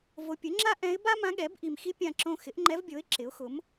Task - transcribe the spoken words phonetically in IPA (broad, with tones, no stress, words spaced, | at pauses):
vo˨pʲʊ˩˥ŋ͡ǁa˥ ʔɛ̃˧˥ɪ̯ ba˥ mã˧˥ɠɛ˩˥bʔi˨m xi˥pʲã˦˨ǁõ˦˨ xɪ˩˥ʔŋ͡ǃɛ˧˥vbʲo˩˥ɪ̯ ǁɪ˩˥ʊ̯xʊ˩˥m